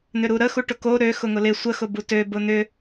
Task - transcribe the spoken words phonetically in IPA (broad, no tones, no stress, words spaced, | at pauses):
n̪ʏɾuɾə xuʈʊko ɾø xʊŋʊlɪ sʷə xʊbutø bʊn̪ʏ